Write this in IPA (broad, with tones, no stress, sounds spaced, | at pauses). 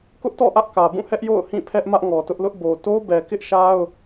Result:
k ʊ˦ ʔ t ɔ̰˦˨ ʔ ä˦ ʔ k ä˨ b ũ˦˨ h ɛ˦ ʔ j o̰˦˨ ʊ̯ h ĩ˦˨ pʰ ɛ˦ ʔ m ä˦ ʔ ŋ ɔ˨ t ʊ˦ ʔ l ʊ˦ ʔ b o˨ t o˦ b ɛ˨ k ɪ˦ ʔ ʃ a˦ ʊ̯